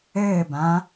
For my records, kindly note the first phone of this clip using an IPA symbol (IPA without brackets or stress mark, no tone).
ɘː